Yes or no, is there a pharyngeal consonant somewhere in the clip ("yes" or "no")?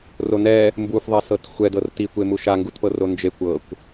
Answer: no